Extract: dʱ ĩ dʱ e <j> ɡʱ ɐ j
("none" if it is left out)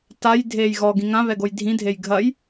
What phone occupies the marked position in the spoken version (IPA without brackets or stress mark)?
j